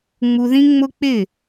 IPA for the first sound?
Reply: ŋ͡m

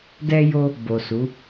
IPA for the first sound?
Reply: d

